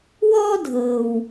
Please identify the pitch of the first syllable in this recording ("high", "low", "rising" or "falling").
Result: high